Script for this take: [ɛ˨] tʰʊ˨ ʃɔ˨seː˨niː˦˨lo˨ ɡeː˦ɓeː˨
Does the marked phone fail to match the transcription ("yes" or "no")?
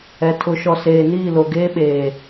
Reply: no